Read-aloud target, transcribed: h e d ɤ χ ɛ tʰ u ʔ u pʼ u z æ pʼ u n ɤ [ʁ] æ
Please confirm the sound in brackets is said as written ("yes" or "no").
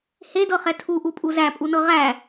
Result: yes